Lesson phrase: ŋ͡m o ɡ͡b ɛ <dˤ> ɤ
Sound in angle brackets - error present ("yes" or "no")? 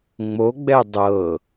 no